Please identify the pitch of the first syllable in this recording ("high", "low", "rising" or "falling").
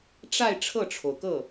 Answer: falling